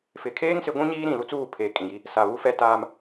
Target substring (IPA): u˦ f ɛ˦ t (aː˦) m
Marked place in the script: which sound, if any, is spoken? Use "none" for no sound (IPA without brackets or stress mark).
aː˦